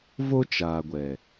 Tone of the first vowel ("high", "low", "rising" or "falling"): high